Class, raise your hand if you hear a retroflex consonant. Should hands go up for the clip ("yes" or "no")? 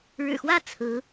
yes